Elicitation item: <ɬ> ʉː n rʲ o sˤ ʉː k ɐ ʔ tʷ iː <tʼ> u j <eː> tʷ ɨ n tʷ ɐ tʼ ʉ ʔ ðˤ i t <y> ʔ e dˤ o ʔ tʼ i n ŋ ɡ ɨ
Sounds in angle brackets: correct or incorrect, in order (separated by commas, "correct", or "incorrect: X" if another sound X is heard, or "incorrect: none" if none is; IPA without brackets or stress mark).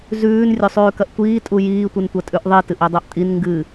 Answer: incorrect: z, correct, incorrect: iː, incorrect: ɨ